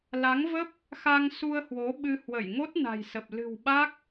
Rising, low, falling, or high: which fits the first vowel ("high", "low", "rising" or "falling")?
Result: rising